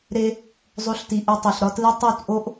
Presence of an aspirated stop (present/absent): absent